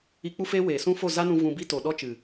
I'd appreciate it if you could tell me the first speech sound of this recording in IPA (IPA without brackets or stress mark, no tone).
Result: i